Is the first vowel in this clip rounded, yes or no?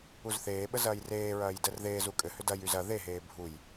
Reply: yes